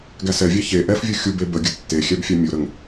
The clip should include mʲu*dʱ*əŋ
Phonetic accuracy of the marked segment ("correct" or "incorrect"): incorrect